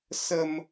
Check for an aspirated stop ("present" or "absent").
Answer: absent